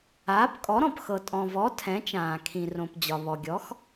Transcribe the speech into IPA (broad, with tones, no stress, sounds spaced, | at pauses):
aː˩˥ p kʼ ɔ˩˥ ɾ ɔ̃˩ p x ɤ˩ tʼ ɔ̃˩ v ɔ˩˥ tʰ ɛ̃˩˥ t͡ʃ ãː˩ kʰ ĩ˩ r õ˩ p d͡ʑ ɒ˩ β ɔ˩ ɡʲ ɔ˩˥ x